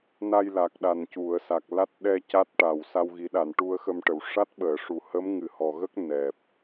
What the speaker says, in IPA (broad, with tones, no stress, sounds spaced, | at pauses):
n a˧ j l a˨˩ k̚ ɗ a˨˩ n c u˨˩˨ ə̯ s a˨˩ k̚ l a˦˥ t̚ ɗ ɛ˧ c a˦˥ t̚ ʈ a˨˩ w s a˧ w ɣ i˨˩˦ ɗ a˨˩˨ n ʈ u˧ ə̯ x ə˧ m ʈ ə˨˩˨ w ʂ a˦˥ t̚ ɓ əː˨˩˨ ʂ u˨˩ h ə˧˥ m ŋ ɨ˨˩ h ɔ˨˩ ɣ ə˦˥ k̚ n ɛ˨˩ p̚